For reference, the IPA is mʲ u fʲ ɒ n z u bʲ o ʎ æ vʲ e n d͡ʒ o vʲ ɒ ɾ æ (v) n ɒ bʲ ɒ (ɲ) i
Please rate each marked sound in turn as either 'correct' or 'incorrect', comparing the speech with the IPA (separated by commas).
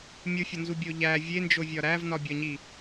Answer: correct, correct